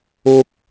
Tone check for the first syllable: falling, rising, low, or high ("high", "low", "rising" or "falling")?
high